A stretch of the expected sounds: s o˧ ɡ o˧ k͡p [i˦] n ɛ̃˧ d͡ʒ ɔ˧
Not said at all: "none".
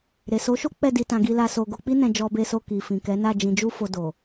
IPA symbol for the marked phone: i˦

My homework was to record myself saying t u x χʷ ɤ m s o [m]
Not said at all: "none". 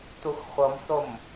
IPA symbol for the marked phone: m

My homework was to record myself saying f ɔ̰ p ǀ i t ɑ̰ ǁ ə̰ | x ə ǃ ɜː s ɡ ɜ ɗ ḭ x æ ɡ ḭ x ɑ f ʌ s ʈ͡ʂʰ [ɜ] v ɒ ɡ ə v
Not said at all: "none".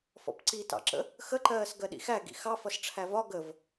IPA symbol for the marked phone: æ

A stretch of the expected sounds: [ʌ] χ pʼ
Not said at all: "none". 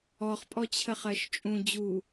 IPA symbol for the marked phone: ɔ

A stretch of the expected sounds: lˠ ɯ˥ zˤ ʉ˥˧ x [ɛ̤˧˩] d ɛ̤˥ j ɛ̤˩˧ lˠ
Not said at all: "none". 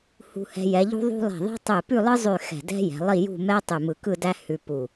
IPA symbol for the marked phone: ɛ̤˧˩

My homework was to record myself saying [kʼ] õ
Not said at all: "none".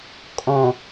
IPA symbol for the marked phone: kʼ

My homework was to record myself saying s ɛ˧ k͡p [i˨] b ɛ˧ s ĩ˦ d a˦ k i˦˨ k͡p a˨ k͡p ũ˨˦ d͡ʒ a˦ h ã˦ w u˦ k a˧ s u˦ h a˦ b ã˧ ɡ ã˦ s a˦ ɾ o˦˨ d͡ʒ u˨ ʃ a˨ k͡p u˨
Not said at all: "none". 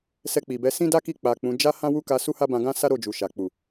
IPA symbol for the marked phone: i˨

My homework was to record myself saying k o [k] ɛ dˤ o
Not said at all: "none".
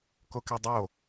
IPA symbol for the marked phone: k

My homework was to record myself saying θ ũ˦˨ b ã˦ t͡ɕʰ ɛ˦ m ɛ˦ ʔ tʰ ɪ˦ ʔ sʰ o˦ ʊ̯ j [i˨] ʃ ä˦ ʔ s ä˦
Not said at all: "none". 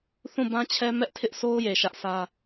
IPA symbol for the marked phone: e˨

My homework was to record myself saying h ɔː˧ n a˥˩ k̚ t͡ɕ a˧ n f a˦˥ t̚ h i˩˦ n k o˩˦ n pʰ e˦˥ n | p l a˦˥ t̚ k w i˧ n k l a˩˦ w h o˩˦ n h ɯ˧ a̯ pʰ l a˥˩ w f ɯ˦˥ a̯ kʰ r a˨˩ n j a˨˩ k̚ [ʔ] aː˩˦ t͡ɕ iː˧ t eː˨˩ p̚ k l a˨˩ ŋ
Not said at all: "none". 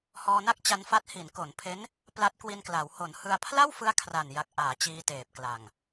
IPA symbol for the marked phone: ʔ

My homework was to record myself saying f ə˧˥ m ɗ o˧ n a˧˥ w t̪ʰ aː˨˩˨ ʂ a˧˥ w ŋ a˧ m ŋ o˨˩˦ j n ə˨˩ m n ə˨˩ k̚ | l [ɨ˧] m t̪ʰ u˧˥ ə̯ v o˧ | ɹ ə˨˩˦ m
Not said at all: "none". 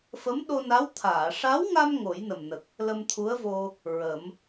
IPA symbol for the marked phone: ə˧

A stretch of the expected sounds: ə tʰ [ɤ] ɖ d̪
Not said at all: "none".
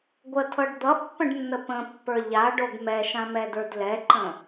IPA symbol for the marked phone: ɤ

